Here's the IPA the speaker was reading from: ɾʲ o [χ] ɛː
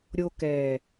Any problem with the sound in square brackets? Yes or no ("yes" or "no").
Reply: yes